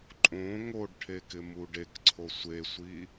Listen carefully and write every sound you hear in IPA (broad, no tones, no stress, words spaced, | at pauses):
ǃʼõ ŋoɖʈʰe kɪmuɖekǀʰo sʷesʷi